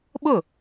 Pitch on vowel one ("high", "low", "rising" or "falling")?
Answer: falling